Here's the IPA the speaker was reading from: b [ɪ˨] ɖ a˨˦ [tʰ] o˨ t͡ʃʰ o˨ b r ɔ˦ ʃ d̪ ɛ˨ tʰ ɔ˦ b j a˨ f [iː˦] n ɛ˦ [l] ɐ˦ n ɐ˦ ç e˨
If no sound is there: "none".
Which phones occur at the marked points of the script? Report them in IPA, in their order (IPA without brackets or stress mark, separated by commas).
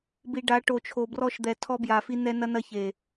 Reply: i˨, ʈ, i˦, n